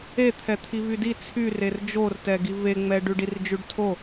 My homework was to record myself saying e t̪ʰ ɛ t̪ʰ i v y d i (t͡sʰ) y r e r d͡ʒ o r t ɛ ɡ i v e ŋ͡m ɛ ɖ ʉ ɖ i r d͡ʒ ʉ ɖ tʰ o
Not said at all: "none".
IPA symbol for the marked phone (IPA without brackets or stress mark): t͡sʰ